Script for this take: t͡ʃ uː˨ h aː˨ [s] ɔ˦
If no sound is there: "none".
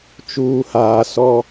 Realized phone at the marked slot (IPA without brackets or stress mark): s